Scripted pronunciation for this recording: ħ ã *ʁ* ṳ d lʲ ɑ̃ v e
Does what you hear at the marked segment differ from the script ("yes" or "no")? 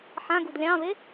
yes